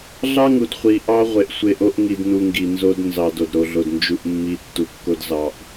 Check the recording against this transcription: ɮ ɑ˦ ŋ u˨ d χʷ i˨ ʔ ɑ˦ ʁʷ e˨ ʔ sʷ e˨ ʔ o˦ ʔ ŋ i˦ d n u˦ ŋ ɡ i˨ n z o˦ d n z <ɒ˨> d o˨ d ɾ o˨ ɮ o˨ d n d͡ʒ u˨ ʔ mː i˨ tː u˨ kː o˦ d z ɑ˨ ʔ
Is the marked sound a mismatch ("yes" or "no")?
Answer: yes